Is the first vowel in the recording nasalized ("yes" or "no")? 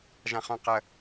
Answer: yes